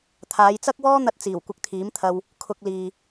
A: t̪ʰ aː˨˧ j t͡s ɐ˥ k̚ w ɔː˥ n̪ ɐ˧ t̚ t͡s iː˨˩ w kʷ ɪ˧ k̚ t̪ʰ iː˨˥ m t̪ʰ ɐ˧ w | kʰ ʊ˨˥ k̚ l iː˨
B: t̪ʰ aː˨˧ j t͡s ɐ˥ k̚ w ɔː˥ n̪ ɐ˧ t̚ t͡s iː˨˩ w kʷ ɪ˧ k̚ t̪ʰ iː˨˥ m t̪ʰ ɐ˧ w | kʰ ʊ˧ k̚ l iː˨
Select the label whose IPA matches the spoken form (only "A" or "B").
B